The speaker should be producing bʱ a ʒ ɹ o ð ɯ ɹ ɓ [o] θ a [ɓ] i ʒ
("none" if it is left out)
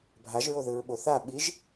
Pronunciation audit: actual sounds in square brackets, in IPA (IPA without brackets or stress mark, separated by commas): o, ɓ